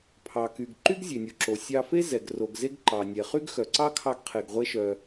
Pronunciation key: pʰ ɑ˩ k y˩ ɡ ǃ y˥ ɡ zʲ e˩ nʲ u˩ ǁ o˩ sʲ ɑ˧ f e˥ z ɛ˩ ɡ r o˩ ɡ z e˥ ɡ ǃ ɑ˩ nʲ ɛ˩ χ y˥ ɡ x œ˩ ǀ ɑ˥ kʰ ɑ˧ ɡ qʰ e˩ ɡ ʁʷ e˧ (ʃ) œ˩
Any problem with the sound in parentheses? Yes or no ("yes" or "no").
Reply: no